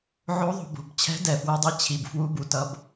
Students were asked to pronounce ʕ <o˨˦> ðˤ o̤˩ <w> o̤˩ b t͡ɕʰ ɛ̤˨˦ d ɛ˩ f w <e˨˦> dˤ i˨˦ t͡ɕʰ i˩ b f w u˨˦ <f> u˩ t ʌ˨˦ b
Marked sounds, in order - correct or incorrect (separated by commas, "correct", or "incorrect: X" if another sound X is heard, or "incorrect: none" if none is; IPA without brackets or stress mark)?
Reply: correct, incorrect: b, correct, incorrect: b